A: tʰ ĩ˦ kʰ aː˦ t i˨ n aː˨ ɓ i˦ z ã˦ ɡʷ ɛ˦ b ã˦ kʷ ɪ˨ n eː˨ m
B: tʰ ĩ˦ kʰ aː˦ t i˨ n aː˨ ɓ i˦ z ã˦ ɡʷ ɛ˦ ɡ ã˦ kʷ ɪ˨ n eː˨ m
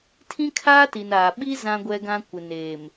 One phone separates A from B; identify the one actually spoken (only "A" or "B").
B